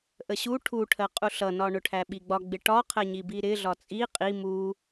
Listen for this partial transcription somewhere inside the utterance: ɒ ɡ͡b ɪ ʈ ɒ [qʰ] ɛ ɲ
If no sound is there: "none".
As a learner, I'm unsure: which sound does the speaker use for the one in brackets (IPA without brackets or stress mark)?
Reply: qʰ